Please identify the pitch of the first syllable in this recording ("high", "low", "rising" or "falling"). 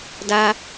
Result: high